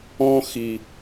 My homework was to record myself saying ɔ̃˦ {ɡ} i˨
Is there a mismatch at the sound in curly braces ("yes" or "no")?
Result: yes